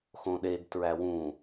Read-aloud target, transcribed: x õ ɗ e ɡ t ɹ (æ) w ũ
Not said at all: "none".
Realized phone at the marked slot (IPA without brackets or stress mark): æ